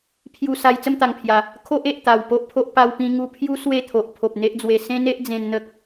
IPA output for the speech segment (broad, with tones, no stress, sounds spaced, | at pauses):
pʰ j u˧ s a˧ j t͡s ə˥˧ m t̪ a˨˩ ŋ pʰ j a˨˩ | kʰ o˦ ʔ e˨ ʔ t̪ a˨˩ w p o˦ ʔ pʰ o˦ ʔ p a˧ w p ĩ˧ ŋ u˧ pʰ j u˦ s w e˥˧ t̪ʰ o˨ ʔ pʰ o˨ p̚ n̪ e˦ ʔ d͡z w e˧ s ẽ˦ n e˦ ʔ d͡z ẽ˧ n n̪ ə˦ k̚